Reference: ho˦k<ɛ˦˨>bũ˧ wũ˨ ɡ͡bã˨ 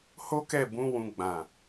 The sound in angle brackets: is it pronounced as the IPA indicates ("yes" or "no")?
yes